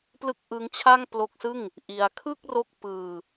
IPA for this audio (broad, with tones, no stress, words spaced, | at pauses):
plɯ˥˩k̚ʔɯ˦˥ŋt͡ɕʰa˥˩ŋ plo˦˥k̚sɯ˥˩ŋ | ʔi˧a̯ kʰɯ˥˩k̚ro˦˥k̚ pɯː˧